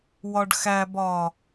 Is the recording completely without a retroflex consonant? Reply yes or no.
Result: no